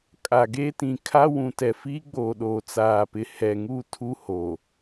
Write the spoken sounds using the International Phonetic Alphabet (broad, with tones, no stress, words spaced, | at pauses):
kʼa˨ ɡeː˦tĩ˨kʰa˦ wũ˨tɛ˨fiː˦ɡ͡boː˨ ɗoː˨t͡saː˨pɪ˨ hɛ˨ŋu˦˨ tʰu˦hoː˨